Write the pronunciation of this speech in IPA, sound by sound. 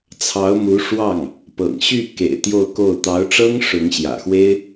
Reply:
t͡sʰɑ˧˥ʊ̯ mu˧˥ ʂwɑ˥˩ŋ | pɤ̰˨˩ŋɕy˥˩kḛ˨˩ɪ̯ t̪jo˥˧ʊ̯ko˥˩ʊ̯ t̪ɑ˧˥ʊ̯ʈ͡ʂɤ˥ŋ ʂʊ˧˥ŋ ɕjä̰˨˩xwe˥ɪ̯

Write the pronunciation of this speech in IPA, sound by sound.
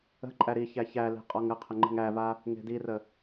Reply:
ə̤ ǃʼæɾiçæ çæle̤ qʼɔŋəqʰə ŋ͡ǃə̤ŋæva | ŋe̤dirə

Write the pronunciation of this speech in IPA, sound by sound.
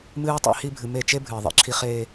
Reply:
mɨː˦tˤḛ˦hi˦ bʱɨ˨me˦˨ t͡ʃe˦ bʱɨː˨ðˤḭ˦ǁʰi˦ χeː˦

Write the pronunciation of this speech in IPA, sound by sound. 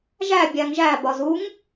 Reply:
ʒæ bʲæŋʒæbɒ zuŋ

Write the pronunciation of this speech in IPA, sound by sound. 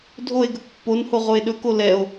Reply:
dʱoe̯ɡɵk pːonho ʁoe̯ɗɵko lɛo̯

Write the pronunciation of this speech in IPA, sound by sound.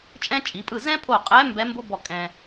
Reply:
t͡ʃʼɛ̃˥t͡ʃʼi˩˧pʼɯ˥˩ zɛ̃˥pʰo˧˩qʼɛ˧˥ mbɛ˧˥mbo˥bɔ˧˩ kʼɛ̃˧

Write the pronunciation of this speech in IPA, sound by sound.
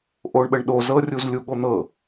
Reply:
ʔoɳɓəɳɗo zɤrʲuzlʲu ɠon̪ɤ

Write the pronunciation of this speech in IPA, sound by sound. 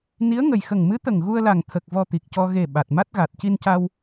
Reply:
ni˧˥ə̯ŋə˨˩j xə˨˩ŋmɨ˧˥t̪ə˨˩ŋ ɣu˧ə̯la˨˩ŋ t̪ʰə˨˩k̚ vɔ˧t̪i˨˩k̚cɔ˧ ɣe˨˩ ɓa˨˩t̚ma˦˥t̚ ɣa˨˩t̚ci˧nca˧w

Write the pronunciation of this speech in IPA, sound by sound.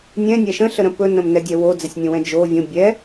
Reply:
nʲɛ̃nʲæ ʃə̃ɬəɾə̃ pɵnə̃mnɛdʲɛ wod͡zɛsʲnʲõwɛ̃ d͡ʒo vʲõ bʲɛ

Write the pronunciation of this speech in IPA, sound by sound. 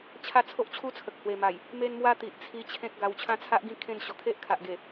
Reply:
t͡ɕʰa˦t͡sʰo˦ʔt͡ɕʰu˦t͡sʰə˨k̚ hwe˨˩ma˨˩j | me˦nmwa˦t̪i˨ʔt͡sʰi˧ t͡ɕʰẽ˦k̚ɡa˧w t͡ɕʰã˦t͡sʰa˦ʔɡĩ˥˧ kʰẽ˥˧n ɕɔ˨˩kʰe˦ʔkʰa˨ʔɡe˨˩

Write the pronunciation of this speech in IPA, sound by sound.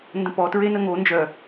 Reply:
ndə̃pɔ tɹenəŋo nd͡ʒœ

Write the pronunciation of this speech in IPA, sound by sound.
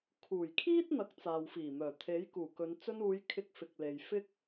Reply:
kʰuː˨˩jkʰiː˥t̚ n̪ɐ˨˥k̚t͡saː˨wfiː˨˩mœː˨˩ t̪ʰe˨˥jkuː˨˩kɵ˨˧n t͡sɵ˧nuː˨˧jkʰɪ˨˥k̚ fɪ˨k̚le˨j fɪ˧k̚

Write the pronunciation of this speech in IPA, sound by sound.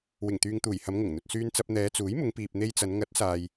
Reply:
wɪ˨˩ŋt̪yː˨ŋt̪uː˨˩j hɐ˨˧mŋʊ˨˩ŋn̪ɵ˨t̚ syː˧nt͡sɐ˧p̚ n̪ɛː˨˧t͡suː˨˥jmʊ˨˧ŋpiː˨p̚ n̪e˧jt͡sɐ˨˧n ŋɐ˨˥t̚saː˨j

